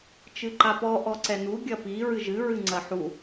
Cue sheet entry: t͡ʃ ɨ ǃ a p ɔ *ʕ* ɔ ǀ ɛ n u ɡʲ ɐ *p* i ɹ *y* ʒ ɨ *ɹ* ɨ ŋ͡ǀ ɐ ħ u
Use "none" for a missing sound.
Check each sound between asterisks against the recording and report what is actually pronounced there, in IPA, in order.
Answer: ʔ, p, ɨ, ɹ

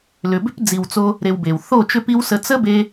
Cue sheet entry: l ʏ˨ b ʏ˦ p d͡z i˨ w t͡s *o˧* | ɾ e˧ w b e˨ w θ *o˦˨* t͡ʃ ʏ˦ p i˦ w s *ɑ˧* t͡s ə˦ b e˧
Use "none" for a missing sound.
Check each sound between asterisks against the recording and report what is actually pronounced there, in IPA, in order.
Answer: o˧, o˦˨, ə˧

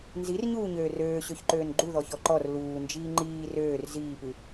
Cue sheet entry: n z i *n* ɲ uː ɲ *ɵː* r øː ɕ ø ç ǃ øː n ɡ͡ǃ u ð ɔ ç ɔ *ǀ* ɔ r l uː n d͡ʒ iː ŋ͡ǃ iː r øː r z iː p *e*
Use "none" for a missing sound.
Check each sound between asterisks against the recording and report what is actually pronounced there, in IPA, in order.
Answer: r, øː, ǃ, ɨ

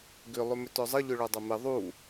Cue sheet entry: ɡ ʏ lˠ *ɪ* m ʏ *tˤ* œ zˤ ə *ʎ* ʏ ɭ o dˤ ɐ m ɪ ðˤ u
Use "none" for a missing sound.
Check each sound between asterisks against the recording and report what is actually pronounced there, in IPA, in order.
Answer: ʏ, t, ʎ

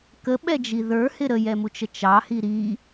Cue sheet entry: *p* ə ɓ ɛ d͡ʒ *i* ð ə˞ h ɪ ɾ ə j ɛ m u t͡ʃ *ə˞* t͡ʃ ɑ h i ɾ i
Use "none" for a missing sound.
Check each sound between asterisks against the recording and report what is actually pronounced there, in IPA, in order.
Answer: k, i, ə

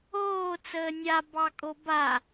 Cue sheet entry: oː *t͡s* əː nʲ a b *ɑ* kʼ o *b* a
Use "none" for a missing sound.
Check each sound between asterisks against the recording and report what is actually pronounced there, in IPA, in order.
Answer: t͡s, ɑ, b

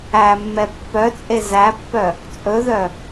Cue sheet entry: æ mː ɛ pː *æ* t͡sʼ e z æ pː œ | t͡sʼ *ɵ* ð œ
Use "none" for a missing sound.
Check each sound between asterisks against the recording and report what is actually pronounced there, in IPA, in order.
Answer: œ, ɵ

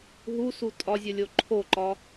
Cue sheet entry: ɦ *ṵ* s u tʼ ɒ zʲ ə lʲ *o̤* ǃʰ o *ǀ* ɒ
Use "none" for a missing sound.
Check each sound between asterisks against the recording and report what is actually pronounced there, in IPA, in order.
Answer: u, o, ǃ

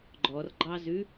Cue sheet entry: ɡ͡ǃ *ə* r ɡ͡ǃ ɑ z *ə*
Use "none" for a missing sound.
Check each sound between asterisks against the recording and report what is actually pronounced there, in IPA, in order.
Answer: ɔ, ʉ

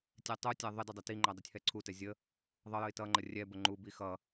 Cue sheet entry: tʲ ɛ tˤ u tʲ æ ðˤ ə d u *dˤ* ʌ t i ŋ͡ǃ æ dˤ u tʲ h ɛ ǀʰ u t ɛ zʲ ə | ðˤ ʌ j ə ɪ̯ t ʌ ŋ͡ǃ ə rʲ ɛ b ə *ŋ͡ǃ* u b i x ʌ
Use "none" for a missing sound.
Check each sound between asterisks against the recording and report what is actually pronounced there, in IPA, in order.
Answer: dˤ, ŋ͡ǃ

